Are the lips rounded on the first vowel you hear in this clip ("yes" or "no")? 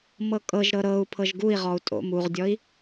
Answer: no